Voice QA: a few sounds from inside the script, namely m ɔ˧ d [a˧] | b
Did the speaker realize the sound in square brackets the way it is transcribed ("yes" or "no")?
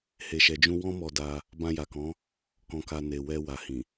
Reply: yes